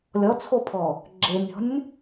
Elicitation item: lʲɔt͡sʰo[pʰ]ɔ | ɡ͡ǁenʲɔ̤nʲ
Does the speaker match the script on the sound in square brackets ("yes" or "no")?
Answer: yes